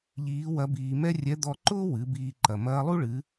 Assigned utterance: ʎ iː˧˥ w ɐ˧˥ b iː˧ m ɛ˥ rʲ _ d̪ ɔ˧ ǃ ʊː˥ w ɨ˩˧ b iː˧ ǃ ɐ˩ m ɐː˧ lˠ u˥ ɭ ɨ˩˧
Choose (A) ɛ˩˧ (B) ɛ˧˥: B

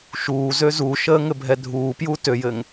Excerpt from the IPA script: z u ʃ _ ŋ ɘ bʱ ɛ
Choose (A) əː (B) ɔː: A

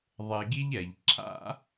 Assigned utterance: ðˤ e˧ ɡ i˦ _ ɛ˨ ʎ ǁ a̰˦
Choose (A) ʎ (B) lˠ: A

